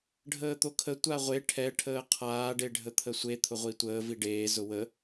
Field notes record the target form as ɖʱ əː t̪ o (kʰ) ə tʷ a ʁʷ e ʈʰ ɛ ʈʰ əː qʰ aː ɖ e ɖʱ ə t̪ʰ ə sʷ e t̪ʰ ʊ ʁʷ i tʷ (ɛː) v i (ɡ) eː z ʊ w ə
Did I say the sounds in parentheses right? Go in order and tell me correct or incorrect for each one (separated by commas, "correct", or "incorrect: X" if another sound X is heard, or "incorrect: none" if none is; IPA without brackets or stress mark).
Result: correct, incorrect: əː, incorrect: ɖ